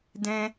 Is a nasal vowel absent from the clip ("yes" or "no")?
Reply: no